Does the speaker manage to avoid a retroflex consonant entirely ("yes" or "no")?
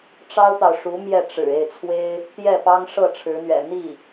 no